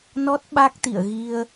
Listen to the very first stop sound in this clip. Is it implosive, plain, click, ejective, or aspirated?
plain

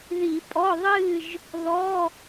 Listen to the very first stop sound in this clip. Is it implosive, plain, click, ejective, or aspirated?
ejective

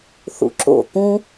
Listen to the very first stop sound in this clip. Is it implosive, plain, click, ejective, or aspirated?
click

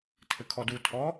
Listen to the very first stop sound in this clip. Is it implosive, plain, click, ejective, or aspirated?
aspirated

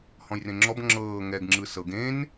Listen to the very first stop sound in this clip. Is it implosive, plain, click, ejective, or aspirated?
click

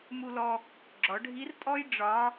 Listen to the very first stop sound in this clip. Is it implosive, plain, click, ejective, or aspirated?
click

